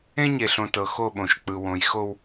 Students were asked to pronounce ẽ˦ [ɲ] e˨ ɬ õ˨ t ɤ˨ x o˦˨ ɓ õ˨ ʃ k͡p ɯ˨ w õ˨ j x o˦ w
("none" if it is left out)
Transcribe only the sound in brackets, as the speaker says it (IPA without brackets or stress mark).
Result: ɲ